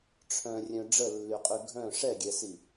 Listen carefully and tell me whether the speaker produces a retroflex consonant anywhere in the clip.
yes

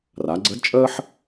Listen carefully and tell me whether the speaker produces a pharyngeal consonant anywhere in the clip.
yes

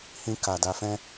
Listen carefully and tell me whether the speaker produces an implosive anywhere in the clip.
no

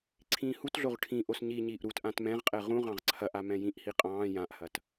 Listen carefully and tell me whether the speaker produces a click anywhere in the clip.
yes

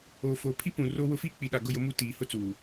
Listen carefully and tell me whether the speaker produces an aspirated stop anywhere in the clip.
yes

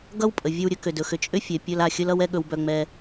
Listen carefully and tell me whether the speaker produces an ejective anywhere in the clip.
yes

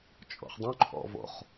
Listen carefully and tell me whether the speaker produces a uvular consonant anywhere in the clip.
yes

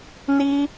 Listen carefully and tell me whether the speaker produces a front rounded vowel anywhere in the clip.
no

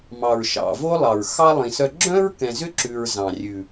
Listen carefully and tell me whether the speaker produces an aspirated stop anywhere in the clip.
no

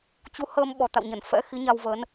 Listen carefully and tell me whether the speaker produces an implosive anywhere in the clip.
yes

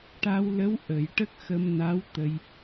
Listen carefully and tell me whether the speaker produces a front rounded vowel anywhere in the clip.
no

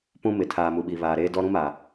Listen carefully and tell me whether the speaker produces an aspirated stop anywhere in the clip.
yes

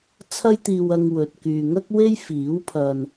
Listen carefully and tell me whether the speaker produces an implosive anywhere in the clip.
no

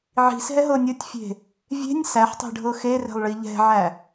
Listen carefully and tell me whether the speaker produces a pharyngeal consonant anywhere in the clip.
yes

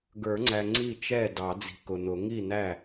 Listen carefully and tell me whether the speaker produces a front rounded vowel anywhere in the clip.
no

